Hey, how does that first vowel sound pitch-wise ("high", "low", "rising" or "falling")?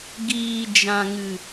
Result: low